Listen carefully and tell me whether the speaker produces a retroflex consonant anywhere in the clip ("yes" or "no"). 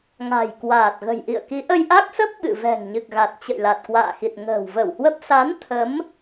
no